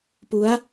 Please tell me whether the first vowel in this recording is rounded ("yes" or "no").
yes